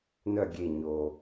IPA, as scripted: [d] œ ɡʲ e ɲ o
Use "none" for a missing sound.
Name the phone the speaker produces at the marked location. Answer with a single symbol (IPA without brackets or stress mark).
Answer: n